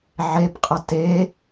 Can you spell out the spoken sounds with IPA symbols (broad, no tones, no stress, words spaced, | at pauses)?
ʕebqʼɐ te